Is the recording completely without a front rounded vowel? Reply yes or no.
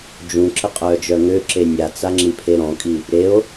no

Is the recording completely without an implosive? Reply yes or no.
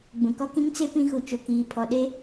no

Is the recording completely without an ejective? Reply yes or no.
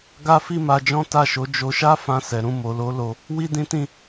yes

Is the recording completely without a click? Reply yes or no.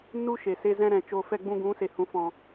yes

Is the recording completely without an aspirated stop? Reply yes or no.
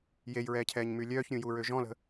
no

